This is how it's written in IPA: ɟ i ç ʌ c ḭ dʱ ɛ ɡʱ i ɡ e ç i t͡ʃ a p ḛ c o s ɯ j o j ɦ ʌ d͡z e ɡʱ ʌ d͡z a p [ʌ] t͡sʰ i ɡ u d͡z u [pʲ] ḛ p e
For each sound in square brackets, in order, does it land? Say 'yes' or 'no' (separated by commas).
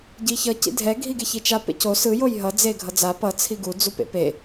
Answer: yes, no